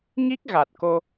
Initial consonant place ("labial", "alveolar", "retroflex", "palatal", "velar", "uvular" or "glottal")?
velar